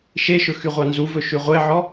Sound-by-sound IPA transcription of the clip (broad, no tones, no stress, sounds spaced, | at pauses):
ʃ e ʃ ɵ x y ʁʷ ɑ n z u v ɵ ʃ ʉ ʁʷ e ʕ ɔ